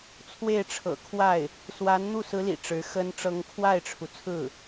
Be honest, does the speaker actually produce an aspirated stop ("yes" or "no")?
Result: yes